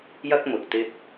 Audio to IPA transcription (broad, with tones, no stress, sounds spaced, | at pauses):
j ɐ˥ k̚ m ʊ˨ k̚ t̪ ɪ˥ k̚